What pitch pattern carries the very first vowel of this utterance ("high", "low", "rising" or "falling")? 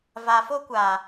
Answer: low